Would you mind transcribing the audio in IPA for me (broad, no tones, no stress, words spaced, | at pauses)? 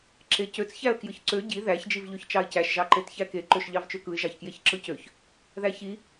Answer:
ǁecøt͡s çæə̯kjɯçǀø ɟi ðæç d͡ʒivʎøçt͡ʃɑɪ̯cæʃ ʒɑǃetçæke ǃøʃʎɑvt͡ʃøkɯɪ̯ ʒɑçkjeçǁɯcøç | ðæçi